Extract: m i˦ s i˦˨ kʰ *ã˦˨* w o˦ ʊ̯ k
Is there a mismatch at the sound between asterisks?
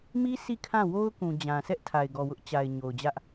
no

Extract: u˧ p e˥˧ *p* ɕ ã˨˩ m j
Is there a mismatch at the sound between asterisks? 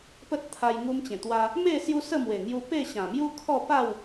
yes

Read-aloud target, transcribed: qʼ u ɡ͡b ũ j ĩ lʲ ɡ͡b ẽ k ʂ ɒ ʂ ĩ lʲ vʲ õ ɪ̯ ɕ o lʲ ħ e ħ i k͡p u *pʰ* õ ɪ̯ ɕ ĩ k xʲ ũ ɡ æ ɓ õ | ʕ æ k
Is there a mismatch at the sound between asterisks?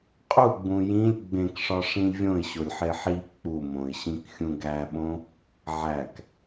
yes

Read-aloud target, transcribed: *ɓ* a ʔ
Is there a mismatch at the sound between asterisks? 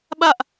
no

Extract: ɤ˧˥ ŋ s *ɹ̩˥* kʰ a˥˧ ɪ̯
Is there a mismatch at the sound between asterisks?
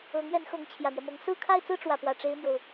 yes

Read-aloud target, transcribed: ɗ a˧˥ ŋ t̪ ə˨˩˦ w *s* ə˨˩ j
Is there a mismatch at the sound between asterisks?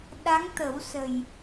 no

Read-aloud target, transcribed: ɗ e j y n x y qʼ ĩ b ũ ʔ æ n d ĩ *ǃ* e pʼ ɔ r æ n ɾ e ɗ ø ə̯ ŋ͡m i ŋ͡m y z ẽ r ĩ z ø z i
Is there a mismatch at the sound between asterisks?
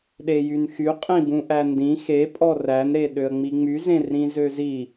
yes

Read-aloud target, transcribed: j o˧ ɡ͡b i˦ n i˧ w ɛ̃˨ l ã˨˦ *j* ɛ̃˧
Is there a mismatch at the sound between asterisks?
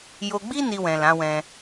yes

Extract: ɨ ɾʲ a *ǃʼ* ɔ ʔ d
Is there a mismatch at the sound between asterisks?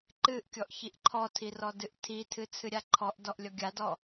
yes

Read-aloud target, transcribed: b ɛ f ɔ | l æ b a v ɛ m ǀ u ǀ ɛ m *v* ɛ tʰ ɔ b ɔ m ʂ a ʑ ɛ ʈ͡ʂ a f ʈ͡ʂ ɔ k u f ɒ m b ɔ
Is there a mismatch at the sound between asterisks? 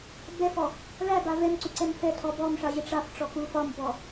yes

